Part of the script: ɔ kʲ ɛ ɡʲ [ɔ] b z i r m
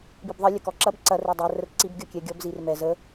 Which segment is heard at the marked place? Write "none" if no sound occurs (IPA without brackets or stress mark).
ɔ